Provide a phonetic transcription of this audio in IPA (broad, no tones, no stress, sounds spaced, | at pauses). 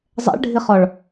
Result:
zˤ ɛ̰ ɭ ɖʱ i χ ɔ ɭ